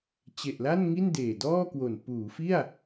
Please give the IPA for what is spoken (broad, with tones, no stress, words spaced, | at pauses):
t͡ɕe˨˩ʔla˥˩n ŋi˥˩n deː˨˩dɔː˥˩kwo˨˩n puː˩˦fi˥˩a̯